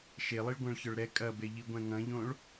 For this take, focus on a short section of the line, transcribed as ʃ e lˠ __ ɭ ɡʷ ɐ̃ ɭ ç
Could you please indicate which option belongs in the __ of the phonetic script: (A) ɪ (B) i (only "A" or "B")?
B